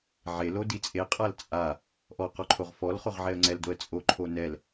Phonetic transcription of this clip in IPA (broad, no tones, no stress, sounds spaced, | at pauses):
ʕ e l o d i t͡sʼ e qʼ a l t͡sʼ a | ʔ ɔ q ɔ ǃʰ o ʁ f ɔ l χ o ʁ ʕ ɛ ə̯ ŋ͡ǀ ɛ l d o ə̯ t͡sʼ o ǃʰ o n ɛ l